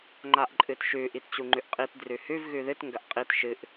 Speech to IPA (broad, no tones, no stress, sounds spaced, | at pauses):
ŋ͡ǃ a ʔ ǃʼ ɨ t ʃ ʉ ʔ i t t͡ɕ u ŋ͡ǃ ʉ ʔ qʼ i t d r ʉ h ʉ v ɣ ʉ ð ɨ t ŋ ɡ ɐ ʔ qʼ i t ʃ ɨ ʔ